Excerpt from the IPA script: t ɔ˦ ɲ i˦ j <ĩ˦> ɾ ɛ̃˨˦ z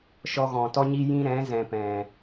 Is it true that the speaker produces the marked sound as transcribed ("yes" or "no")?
yes